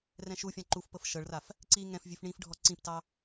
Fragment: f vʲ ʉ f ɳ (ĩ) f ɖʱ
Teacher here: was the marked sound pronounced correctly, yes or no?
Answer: yes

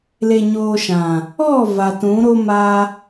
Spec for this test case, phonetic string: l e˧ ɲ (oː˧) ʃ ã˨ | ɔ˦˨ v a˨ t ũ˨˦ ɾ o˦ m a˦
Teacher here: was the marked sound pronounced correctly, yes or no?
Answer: yes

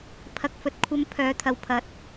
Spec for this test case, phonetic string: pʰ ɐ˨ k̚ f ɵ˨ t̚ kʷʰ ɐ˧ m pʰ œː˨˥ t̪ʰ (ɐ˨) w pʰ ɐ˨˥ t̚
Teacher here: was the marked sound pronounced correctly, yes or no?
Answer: yes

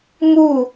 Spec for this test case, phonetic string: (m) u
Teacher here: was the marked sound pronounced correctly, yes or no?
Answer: yes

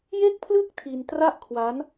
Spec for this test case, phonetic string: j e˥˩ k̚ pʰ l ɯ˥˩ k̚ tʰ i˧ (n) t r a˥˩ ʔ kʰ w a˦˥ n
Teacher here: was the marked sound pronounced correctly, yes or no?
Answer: yes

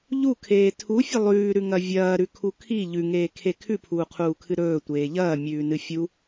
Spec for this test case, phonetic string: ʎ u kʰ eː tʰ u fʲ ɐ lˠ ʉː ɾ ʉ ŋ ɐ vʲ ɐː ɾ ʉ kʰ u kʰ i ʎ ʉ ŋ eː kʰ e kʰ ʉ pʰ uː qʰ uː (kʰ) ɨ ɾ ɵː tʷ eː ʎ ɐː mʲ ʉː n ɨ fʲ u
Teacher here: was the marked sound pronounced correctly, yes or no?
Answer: yes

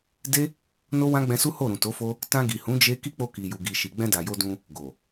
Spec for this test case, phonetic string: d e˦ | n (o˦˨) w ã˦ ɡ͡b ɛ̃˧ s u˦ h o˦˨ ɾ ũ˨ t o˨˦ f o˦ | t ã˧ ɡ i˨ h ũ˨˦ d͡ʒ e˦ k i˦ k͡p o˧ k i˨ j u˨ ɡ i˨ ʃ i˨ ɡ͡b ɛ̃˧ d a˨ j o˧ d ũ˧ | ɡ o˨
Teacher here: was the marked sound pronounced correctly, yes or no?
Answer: no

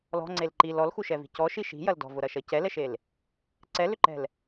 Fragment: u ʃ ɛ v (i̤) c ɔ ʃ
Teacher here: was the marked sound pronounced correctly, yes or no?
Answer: yes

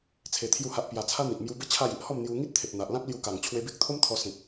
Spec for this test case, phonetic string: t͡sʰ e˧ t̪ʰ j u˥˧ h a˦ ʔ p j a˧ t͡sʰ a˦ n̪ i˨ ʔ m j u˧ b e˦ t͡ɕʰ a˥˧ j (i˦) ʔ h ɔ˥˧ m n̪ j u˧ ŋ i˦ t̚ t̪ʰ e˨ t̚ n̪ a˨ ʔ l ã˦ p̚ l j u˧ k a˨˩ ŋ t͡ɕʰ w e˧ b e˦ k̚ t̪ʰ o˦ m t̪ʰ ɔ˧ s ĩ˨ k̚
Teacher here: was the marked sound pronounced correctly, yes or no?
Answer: yes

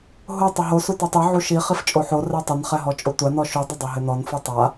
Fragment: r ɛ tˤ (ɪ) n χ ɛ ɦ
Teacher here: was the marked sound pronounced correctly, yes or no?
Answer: yes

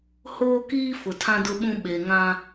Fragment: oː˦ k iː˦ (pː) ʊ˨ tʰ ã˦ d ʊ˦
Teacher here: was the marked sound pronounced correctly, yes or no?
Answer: no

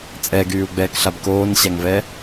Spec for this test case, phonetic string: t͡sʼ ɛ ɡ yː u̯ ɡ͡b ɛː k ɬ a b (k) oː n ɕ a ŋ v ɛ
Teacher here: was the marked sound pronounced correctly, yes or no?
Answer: yes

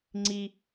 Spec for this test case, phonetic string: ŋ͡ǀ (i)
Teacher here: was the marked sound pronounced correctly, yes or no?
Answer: yes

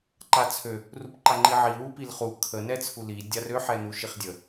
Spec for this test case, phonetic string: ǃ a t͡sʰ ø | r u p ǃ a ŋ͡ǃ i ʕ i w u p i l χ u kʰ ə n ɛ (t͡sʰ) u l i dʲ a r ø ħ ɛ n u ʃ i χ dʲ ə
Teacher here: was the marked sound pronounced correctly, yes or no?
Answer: yes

